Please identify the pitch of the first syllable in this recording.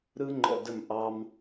high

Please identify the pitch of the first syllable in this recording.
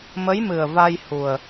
rising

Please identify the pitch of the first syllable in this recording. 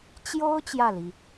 high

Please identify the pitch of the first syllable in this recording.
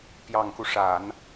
low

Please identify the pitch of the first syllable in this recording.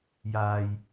low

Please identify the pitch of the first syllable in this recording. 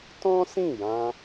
high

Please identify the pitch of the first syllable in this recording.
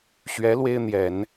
rising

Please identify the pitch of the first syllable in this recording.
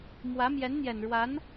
rising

